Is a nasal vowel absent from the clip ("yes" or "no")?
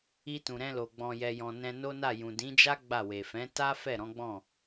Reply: no